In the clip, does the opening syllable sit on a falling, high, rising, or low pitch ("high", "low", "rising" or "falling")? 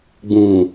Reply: low